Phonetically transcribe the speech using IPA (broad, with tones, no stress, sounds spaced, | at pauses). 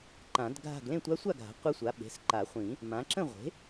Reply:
ǃ ã˨˩˦ d ɡʱ a̤˥˨ ɡ l ẽ˥˨ tʷ a˧˥ sʷ a˥˨ ɡʱ a̤˩˥ qʷ ɛ˧˥ sʷ a˩˥ ɓ e̤˩˧˩ s ǃ a˨˩˦ χʷ ĩ˨˩˦ | m ã˩˥ ǁ ə̃˥˨ ʁʷ e̤˩˥